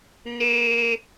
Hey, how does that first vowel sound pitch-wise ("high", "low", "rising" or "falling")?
high